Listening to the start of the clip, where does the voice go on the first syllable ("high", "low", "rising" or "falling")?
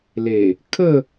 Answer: low